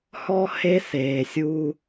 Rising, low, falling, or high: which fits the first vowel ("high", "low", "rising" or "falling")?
high